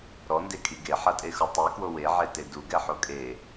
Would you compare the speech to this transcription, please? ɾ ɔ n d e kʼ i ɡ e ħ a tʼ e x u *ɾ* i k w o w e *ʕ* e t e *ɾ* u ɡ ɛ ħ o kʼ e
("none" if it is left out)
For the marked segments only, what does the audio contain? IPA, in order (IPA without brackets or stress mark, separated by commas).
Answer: tˤ, ʕ, d